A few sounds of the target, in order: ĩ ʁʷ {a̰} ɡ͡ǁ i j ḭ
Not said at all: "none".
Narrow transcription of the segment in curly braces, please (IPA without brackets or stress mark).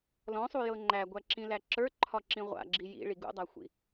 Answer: a̰